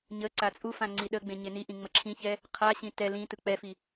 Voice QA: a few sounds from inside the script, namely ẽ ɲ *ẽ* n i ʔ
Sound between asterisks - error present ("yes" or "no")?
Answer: yes